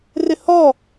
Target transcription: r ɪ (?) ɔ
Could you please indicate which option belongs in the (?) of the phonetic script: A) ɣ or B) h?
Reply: B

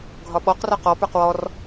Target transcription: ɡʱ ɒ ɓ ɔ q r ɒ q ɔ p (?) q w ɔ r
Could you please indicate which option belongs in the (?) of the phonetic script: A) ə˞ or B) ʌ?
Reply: A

